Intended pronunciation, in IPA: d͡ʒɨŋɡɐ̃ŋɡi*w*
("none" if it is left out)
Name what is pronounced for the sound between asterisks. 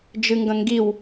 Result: w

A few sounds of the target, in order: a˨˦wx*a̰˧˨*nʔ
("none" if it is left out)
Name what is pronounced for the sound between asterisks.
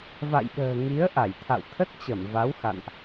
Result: a̰˧˨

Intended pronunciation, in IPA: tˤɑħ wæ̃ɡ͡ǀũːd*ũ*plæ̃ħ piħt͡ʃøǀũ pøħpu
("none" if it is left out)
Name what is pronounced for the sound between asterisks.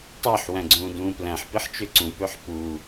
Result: ũː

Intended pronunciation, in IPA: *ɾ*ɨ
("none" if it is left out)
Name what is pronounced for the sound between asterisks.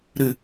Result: ɾ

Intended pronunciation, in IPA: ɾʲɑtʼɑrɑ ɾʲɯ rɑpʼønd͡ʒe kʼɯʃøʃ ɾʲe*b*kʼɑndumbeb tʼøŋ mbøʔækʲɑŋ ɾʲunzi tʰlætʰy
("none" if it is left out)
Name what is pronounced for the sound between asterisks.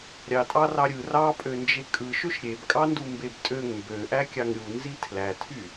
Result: b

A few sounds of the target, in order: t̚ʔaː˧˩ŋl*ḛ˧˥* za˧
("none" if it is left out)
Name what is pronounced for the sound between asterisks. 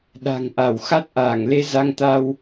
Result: e˧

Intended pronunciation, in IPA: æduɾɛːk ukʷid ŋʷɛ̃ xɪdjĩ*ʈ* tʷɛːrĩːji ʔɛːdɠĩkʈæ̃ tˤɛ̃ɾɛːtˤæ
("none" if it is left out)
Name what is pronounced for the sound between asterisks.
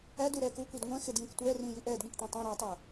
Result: k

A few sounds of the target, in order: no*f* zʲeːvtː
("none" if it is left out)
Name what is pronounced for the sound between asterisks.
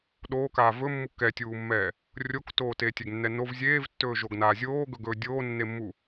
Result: v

